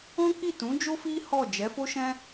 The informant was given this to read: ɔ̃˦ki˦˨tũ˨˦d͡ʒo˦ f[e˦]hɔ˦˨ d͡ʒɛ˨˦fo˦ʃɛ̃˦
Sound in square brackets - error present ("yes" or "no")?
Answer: yes